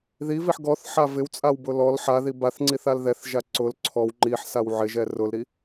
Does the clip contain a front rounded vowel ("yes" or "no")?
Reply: no